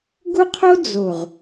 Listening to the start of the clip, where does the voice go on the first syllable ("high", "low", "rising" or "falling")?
high